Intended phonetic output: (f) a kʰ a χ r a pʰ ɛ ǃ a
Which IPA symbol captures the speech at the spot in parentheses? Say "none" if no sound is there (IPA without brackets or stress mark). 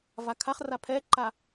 v